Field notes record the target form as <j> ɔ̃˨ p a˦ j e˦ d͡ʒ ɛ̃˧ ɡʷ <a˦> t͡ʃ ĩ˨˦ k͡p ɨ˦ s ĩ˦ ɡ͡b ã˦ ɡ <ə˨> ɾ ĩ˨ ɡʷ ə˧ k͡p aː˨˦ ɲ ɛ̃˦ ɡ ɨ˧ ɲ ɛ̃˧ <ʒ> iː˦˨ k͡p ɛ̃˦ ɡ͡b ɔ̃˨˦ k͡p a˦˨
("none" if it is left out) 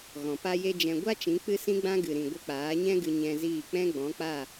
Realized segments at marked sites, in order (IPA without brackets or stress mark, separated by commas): ɣ, a˦, ɨ˨, z